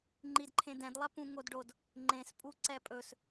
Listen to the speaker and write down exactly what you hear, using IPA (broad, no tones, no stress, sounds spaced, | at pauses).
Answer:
ŋ͡ǃ i d ǃʰ ẽ d ɛ̃ d lˠ ɛ p ũ ŋ o d ɖ o d | ŋ͡ǃ ẽ s pʼ u ǀ ɛ pʼ ɵ s